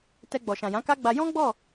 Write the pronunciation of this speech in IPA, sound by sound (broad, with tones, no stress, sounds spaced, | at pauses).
t ɛ˧ ɡ͡b ɔ˨ ʃ ã˨ j ã˨˦ k a˦ ɡ͡b a˧ j ɔ̃˦ ɡ͡b ɔ˦˨